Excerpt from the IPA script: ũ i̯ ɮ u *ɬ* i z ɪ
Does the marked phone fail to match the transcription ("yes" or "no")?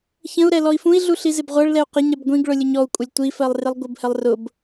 no